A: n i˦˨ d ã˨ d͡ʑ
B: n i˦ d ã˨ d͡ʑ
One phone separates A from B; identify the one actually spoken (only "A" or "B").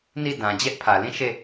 A